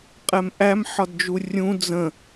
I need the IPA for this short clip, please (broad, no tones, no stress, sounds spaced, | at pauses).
qʼ ɛ m ʔ æ m ħ ɒ d d͡ʒ u rʲ ũ d͡z ə̃